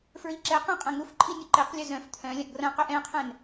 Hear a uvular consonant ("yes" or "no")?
yes